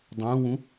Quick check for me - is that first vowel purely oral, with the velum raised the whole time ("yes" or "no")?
no